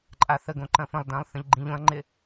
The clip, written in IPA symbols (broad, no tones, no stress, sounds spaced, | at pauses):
ǃʼ a θ ə ɡ õ ǃ ɐ̃ f ə̃ lˠ d ã lˠ θ ə̃ ʎ ɡ͡ǃ ĩ ʎ õ ɐ̯ ŋ͡ǃ ɪ